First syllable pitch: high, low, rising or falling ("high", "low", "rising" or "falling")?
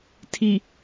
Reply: low